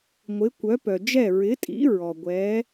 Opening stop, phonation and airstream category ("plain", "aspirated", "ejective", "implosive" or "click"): plain